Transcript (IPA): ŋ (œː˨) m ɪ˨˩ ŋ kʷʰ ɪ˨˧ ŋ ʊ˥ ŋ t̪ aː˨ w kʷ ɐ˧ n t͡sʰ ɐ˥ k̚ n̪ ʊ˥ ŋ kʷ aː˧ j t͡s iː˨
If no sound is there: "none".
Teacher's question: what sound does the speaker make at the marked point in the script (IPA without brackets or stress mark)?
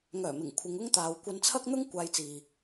œː˨˩